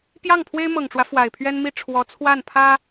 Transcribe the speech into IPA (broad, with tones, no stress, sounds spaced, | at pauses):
p j ɑ˥˩ ŋ pʰ w e˥ ɪ̯ m ɤ˨˩ ŋ ʈ͡ʂ w ä˦ f w a˨˩ ɪ̯ pʰ ɥ ɛ˥ n m i˥ ʈ͡ʂʰ w ɔ˧˥ t͡sʰ w a˥˩ n pʰ ä˥